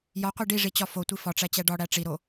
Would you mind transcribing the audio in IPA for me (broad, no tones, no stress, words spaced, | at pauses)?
jɒqʷi ɖiʐit͡ɕɒ fotʷi fɒʈ͡ʂæt͡ɕæ ɖɒɽæ ʈ͡ʂiɾo